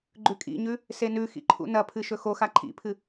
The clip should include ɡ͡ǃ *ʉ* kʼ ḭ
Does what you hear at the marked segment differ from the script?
no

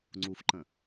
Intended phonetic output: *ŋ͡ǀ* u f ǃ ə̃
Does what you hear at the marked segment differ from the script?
no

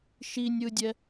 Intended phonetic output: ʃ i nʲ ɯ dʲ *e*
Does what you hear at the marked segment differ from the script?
yes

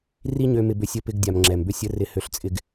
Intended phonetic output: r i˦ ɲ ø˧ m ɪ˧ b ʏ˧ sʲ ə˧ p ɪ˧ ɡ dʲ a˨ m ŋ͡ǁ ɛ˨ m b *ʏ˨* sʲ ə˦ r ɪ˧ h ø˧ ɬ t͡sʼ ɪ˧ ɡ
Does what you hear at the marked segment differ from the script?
yes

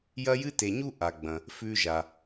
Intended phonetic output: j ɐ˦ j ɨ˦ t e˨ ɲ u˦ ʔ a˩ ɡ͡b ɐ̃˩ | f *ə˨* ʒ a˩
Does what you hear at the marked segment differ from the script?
yes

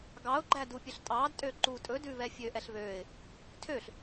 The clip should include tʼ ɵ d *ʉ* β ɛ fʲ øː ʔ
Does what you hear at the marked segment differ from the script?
no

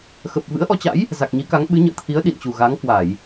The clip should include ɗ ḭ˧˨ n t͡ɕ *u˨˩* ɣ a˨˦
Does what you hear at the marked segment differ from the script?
no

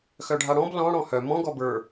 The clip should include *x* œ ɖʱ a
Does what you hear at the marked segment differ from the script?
no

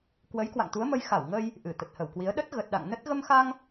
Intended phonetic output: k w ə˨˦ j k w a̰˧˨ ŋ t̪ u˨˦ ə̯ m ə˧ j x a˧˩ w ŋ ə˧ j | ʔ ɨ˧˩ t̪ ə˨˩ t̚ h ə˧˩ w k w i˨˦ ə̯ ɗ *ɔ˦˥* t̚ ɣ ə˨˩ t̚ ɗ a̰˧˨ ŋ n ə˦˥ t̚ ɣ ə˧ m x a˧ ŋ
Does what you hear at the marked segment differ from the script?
yes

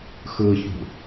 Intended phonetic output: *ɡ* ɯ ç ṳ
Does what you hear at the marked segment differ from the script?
yes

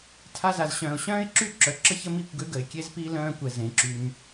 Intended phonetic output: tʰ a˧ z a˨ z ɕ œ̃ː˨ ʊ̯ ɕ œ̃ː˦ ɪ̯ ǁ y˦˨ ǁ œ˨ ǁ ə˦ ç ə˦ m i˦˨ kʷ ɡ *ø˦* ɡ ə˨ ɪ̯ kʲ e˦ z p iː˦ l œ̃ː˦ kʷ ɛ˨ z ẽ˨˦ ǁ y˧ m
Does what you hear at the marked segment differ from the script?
no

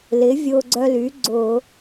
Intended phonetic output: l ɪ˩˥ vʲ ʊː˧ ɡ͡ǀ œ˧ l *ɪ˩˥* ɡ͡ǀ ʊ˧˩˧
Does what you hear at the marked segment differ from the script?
yes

